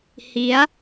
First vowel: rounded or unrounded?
unrounded